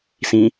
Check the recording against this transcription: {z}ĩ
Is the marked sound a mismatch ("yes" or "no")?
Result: yes